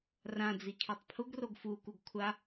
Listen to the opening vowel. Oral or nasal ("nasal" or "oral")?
nasal